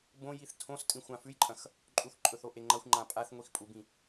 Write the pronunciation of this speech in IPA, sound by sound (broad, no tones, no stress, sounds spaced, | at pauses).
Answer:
b õ j i θ tʰ õ s tʼ ĩ xʷ ã f ʉ j ǃʼ ɐ̃ x | ǃʼ u θ ǃʼ ɵ θ o ʔ e ŋ͡ǃ ɐ xʷ ŋ͡ǃ ã pʼ a θ ŋʷ i x pʼ u b ĩ